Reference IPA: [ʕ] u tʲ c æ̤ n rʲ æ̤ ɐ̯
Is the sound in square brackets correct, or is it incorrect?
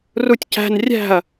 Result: incorrect